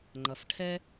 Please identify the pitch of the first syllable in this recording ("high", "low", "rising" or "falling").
low